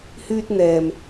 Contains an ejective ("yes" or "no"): no